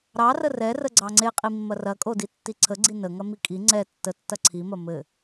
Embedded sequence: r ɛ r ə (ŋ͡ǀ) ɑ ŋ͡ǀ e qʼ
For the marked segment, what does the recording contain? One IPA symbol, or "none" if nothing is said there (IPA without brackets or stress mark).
ɡ͡ǀ